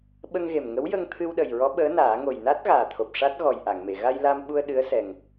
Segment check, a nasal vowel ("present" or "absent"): absent